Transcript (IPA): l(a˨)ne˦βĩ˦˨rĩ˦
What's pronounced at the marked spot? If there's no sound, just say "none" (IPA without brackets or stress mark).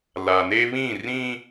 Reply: a˨